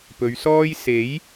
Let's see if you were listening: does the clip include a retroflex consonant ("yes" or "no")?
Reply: no